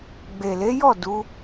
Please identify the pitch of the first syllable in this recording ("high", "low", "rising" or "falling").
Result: low